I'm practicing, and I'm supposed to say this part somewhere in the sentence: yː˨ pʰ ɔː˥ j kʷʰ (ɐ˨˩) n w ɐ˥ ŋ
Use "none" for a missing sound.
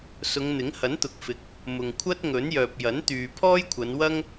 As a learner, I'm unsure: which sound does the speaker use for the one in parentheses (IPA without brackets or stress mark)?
ɐ˨˧